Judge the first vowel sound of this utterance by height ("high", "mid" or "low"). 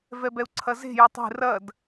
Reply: mid